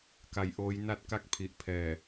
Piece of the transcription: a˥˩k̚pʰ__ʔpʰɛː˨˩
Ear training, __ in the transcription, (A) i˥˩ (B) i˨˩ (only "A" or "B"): B